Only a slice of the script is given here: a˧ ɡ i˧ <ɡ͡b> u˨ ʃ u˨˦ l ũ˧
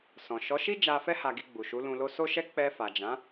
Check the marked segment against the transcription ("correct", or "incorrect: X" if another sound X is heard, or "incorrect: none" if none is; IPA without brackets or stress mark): correct